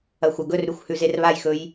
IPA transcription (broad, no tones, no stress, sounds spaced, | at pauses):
ɐ xʷ ɐ ɡ ɵ r ɾ ʉ xʷ h ʉ z e r β a j x ɵ j